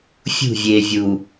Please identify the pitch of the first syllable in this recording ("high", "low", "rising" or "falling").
falling